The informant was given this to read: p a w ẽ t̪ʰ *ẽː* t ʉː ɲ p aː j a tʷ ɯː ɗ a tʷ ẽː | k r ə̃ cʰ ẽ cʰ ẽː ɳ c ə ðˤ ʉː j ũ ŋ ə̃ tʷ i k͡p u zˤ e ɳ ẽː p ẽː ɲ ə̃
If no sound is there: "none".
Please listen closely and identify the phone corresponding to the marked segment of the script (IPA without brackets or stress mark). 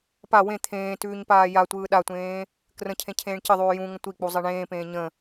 ẽː